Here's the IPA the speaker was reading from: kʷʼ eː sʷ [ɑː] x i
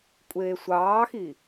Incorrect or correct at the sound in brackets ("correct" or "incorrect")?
correct